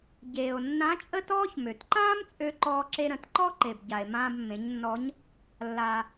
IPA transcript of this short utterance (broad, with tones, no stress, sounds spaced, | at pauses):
ɟ eː˩ o̯ nː ã˧˥ t͡ʃʼ ə˥ t ɔː˥ ç m ø˩ t ǃ ãː˥ m t͡sʼ ø˧ ǃ ɔː˧ ǁ e˧ ɾ ə̃˩˧ t ǃ ɔ˥ ǃ e˩ b ɟ a˩ e̯ m ãː˧ b mː ẽ˩˧ ɲ nː ɔ˧˥ ɲ | lː a˩